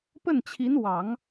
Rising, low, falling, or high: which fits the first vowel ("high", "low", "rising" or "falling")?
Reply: falling